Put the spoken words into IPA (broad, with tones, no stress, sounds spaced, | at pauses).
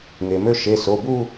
ŋ e˩ m ø˥˧ ʃ e˩˧˩ s o˩˧˩ b u˥˧